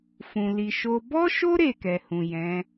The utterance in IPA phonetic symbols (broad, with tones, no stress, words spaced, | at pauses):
fũ˨ li˨ʃo˧ bɔ˦ʃo˦ ɾe˦˨kɛ˨hũ˨ jɛ̃˨˦